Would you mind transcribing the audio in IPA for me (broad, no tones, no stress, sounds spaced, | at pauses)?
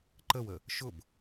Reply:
ǃ ə w ə | ʃ ʊ b